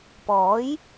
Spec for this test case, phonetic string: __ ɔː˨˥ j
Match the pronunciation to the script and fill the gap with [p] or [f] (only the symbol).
p